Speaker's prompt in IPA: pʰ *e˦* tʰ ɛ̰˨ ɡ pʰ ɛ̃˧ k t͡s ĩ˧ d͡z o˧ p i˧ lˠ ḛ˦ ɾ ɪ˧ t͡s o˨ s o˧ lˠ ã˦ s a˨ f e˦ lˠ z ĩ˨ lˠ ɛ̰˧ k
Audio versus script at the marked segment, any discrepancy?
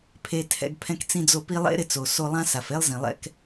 yes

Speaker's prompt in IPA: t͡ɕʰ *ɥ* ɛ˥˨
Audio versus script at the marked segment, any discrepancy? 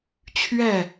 no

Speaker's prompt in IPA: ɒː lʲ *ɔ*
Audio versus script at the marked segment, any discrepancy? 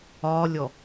no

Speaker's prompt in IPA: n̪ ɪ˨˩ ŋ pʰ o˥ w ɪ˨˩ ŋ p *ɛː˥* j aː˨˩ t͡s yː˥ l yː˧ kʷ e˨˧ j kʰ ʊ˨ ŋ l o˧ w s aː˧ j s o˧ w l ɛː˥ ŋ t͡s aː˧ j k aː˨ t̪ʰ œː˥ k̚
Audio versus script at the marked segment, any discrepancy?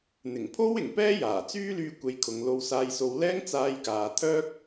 no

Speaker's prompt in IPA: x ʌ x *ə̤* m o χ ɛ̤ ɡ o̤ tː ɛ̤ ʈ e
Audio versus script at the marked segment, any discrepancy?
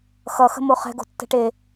no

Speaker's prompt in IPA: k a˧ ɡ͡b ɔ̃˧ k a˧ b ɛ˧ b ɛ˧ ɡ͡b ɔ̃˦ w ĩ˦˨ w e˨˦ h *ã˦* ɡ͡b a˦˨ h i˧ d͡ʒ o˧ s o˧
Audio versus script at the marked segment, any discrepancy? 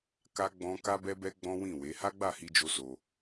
yes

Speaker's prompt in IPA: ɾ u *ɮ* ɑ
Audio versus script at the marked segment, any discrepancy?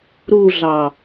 no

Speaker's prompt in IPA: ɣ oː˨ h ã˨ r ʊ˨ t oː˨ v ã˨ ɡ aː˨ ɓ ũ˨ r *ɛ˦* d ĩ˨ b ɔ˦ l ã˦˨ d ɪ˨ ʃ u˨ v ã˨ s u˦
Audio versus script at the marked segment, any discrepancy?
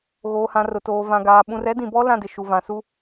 no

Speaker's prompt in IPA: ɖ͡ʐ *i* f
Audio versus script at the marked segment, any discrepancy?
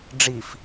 no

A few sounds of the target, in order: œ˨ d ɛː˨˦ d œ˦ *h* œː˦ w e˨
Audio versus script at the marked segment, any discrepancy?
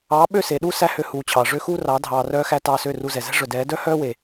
no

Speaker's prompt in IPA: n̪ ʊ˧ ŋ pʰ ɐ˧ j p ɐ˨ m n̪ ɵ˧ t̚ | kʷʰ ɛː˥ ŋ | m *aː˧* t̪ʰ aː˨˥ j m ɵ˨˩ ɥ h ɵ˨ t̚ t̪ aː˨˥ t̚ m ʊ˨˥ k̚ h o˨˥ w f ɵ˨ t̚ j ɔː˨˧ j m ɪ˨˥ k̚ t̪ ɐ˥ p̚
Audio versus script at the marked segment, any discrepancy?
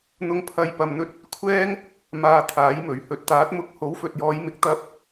no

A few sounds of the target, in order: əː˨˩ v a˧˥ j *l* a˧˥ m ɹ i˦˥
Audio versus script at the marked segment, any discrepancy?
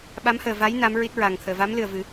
yes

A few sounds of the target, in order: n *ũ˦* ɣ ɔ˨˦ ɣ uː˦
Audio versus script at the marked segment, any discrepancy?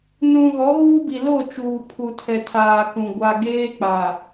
yes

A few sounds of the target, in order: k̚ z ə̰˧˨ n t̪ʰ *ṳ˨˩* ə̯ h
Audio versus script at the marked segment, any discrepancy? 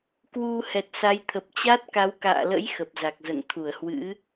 yes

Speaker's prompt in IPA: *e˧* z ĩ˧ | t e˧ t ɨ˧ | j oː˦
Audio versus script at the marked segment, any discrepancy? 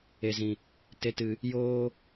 no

